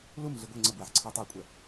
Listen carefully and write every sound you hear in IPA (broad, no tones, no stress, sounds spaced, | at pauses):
l u m ɮ i ɡʷ ɛ ŋ͡ǀ ə b w æ ħ ǀʰ i tˤ e kʷʼ ɛ